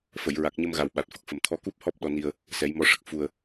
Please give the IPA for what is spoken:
f ə˨˩˨ j ɹ a˨˩ k̚ ɲ ə˧ m ɣ a˨˩ w ɓ a˨˩ t̚ f ə˨˩ k̚ f ə˨˩ m t̪ʰ ɔ˧ k u˦˥ p̚ h ɔ˦˥ p̚ ɗ ɔ˧ n i˧ ə̯ | s ɛ˨˩˦ j m ɔ˧ ʂ ə˨˩ k̚ f u˧ ə̯

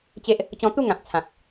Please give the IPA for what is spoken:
t͡ɕ e˦ ʔ | t͡ɕ ɔ̃˧ t̪ u˥˧ ŋ ã˨ p̚ t͡sʰ ã˨ k̚

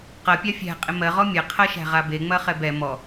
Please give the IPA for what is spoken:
q ɐ pʲ a fʲ æ̤ qʼ ɪ m ɜ ʁ ɔ mʲ ɐ qʰ ɐ ʃ æ̤ ʁ a b e ŋ͡m ɐ χ ɛ b ɛ m ɔ

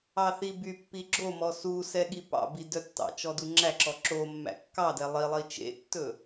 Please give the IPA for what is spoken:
ɑ θ i b y pː i ɡ͡ǁ o m ɔ s u s ɛ ɠ i p ɑ̰ b i d œ tː ɑ̰ t͡ʃ ɔ d u ŋ͡ǁ æ ǁ ɔ ǁ o mː æ̰ kː ɑ d ɛ lˠ i lˠ i t͡ʃ ḛ tː ɵ

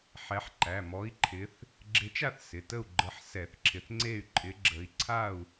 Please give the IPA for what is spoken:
ħ ɛ˨˦ ħ ǃ æ˩˧˩ m ɔ˨˦ i̯ ǃʰ ɪ˨˦ θ | ɡ͡ǁ ɪ˨˦ t͡ʃ a˥˨ θ s ɪ˩˧˩ t ə˥˨ u̯ ɡ͡ǃ ə˨˦ ħ s ɛ˧˩˧ θ ǁʰ ɪ˨˦ θ ŋ͡ǀ e˥˨ y̯ ǃʼ ɪ˨˦ ɡ͡ǁ ə˨˦ i̯ ǀʰ a˥˨ u̯

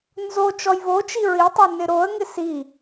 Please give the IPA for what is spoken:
n z o t͡ʃ ɔ j v o t͡ʃ i ɹ i tˤ o n ɪ ɾ o ə̯ ŋ ɪ s i

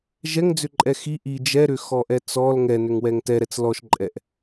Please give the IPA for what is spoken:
ʒ ɛ ŋ d͡z ʏ ǃʼ ɛ x i ʔ i d͡ʒ ɛ ɾ ʏ x ɔ ʔ ɛ t͡s ɔ l ŋ ɛ n ʏ ŋ w ɛ ŋ t ɛ ɾ ɛ t͡s l ɔ ʃ ǃʼ ɛ ʔ

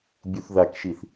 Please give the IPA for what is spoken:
bʲ u θ ð a k ʃ i θ

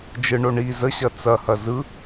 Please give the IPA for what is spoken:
d͡ʒ ɯ ɳ o ɳ i z ə ɕ ɐ t͡s ɐ h ɐ z ɯ

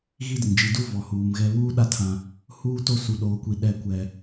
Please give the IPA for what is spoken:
ɣ i˦ d ɪ˨ n d͡ʒ i˨ d u˦ v ɔ˨ h uː˨ m ɣ ɛ˦ β uː˦ ɗ a˦ tʰ ã˦ | h uː˦ t o˦ s u˨ ɗ oː˨ kʷ i˨ ɗ ɛ˦˨ kʷ ɛ˦

